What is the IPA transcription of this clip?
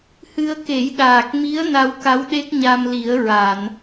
h ɨ˧ ə̯ k e˨˩˦ j ɗ aː˨˩ k̚ m i˧˥ ə̯ n a˧ w k a˧˥ w ɗ e˦˥ k̚ ɲ a˧ m l i˨˩˦ ə̯ ɹ a˨˩˨ n

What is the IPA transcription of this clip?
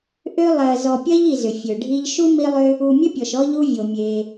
ʔ ø˥ lˠ ɜ˨ z ɔ˨ pʲ ɜ˥ ʎ i˨ z ʏ˩ fʲ ø˩ ɖʱ i˥ ʎ ʃ u˥ m i˥ lˠ ʏ˥ | u˨ mʲ ɘ˥ pʲ ɔ˩ ʃ ɔ˦ ʎ u˥ vʲ o˩ mʲ e˨

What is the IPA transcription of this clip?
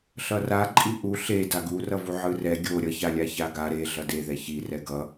ɬ ʌ r a ǃʼ i ʔ u ɬ e d a ɡ u r ʌ v u ʕ ɯ r ɛ ɡʲ o ɾʲ ʌ ç a lʲ a ç a ɡ a ɾ e ɮ ʌ d e ð ɛ ç i r ɛ ɡ ʌ

